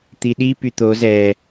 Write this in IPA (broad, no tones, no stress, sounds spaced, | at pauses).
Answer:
t̪ i ɗ i p y t̪ o z ɛ